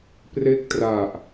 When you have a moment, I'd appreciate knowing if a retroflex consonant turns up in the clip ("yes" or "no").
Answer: no